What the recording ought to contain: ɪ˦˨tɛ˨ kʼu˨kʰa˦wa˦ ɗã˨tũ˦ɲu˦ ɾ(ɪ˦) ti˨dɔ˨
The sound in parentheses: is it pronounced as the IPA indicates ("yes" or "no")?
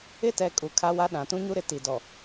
yes